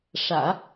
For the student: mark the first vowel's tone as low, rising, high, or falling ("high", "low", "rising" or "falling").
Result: low